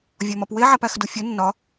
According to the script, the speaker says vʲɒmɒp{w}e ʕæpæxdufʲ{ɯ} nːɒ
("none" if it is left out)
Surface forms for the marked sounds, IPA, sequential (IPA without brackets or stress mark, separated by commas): w, u